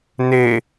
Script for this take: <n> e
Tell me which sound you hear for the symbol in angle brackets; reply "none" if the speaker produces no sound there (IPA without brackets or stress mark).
n